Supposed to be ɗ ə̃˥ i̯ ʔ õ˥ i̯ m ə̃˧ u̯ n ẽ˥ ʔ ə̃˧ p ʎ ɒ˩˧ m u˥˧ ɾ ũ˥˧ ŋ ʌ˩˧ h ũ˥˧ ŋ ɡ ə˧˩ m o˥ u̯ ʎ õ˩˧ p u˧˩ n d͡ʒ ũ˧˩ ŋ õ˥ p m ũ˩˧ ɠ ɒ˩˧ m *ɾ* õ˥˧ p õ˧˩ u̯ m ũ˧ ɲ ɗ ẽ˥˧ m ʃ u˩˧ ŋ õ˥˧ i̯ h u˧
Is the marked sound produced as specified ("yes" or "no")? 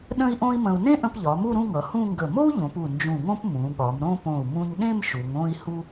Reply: yes